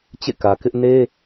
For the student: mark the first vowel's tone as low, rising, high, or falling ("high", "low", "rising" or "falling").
falling